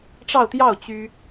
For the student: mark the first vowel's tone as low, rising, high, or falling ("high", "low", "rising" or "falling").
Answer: falling